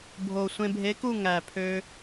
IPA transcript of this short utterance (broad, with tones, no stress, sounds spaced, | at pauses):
bʱ o˨˩ sʷ ẽ˧ bʱ e˧˥ k u˥˧ ŋ æ˨˩ pʰ ø˧